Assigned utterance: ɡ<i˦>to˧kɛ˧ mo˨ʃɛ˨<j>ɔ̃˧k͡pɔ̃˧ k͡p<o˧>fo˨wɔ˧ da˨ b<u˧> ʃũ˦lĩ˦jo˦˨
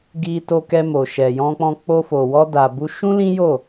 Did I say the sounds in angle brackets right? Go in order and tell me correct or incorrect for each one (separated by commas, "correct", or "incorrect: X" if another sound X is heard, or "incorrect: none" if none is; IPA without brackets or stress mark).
incorrect: i˧, correct, correct, correct